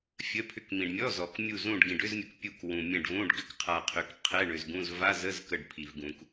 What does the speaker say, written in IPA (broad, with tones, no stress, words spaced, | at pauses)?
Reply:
fʲə˧˥˧pʰʏ˧˥˧kmĩ˨ɖ mʲɔ˧˥˧ zɔ˨k mʲu˦˨zũ˦˨ɖ ɡĩ˨ɖʏ˧˥˧zmʲə˨k pʲu˦˨k wũ˨mʲɛ̃˦˨ɖvũ˧˥˧ɖ ɡʏ˦˨kqʰa˨qʰʏ˨k qʰɛ˧˥˧ɳʏ˨zɡũ˧˥˧z va˧˥˧zə˧˥˧z kə˦˨ɖpʰi˨vɡũ˨k